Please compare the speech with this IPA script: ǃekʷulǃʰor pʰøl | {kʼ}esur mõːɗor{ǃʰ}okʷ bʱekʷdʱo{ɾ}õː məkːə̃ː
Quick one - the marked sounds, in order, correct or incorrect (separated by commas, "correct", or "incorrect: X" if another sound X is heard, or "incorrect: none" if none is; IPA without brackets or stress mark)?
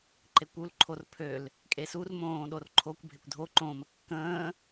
correct, correct, incorrect: ǃ